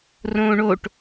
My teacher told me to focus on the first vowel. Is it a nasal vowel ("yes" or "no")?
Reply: yes